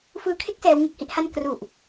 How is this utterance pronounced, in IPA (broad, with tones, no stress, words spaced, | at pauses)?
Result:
fɯː˧kʰe˥˩k̚ sɛː˦˥wŋɯ˦˥k̚hi˥˩ʔha˥˩n kru˨˩ʔ